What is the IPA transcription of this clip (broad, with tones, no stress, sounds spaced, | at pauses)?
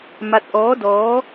m a˧ t̚ ʔ ɔː˧˥ d ɔː˧˥